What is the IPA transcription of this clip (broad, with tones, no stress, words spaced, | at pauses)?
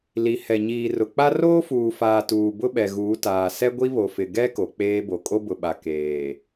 li˨ hɛ˨ɲiː˨rʊ˨k͡pa˦ roː˦fuː˨faː˨ tuː˨ bʊ˦ɓɛ˨ɣuː˨˦ taː˨ sɛ˦ɡʷi˦βo˨fɪ˨ ɡɛ˦ ko˨k͡peː˦bo˨ kʼo˦bʊ˨ɓa˨ keː˨